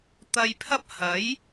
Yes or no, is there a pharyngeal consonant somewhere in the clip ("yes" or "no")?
no